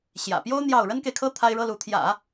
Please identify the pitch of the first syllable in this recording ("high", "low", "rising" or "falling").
low